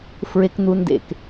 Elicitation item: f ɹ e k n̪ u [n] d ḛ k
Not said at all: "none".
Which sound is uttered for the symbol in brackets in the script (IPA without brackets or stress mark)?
n